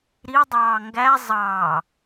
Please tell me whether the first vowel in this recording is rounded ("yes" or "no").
no